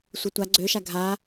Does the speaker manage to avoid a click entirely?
no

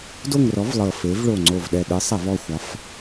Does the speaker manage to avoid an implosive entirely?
no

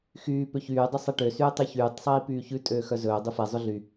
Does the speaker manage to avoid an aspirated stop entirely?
yes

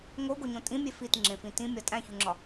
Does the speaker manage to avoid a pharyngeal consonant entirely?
yes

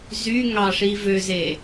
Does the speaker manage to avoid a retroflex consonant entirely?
no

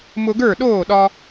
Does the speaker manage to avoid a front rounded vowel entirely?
yes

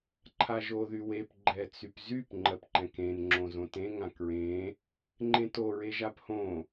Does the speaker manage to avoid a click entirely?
no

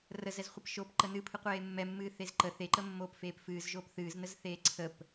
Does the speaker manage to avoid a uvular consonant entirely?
no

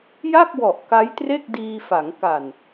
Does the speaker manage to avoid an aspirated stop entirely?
yes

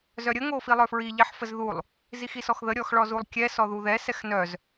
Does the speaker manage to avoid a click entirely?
yes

